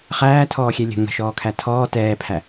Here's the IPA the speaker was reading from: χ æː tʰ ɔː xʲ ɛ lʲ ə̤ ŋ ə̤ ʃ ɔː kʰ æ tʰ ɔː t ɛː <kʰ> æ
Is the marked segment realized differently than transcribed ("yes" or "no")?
yes